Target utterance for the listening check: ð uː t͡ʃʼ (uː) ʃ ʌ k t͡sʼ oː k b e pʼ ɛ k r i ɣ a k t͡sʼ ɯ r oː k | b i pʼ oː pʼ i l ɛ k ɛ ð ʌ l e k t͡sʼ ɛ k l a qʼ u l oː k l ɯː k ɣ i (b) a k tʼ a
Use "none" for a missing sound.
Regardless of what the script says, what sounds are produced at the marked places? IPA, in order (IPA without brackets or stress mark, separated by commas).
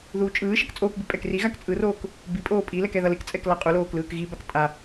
ɯː, b